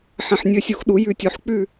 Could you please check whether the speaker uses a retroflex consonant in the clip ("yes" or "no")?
no